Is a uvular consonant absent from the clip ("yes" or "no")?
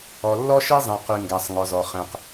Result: no